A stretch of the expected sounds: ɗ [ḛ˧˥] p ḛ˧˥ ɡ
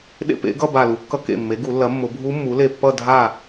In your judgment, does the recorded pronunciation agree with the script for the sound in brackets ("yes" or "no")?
no